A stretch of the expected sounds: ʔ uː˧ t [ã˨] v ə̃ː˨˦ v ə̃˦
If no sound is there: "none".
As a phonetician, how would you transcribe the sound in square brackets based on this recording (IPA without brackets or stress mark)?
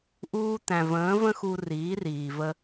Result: æ̃˨